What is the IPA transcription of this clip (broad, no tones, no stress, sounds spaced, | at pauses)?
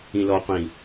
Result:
ĩ l ɔ qʷ ĩ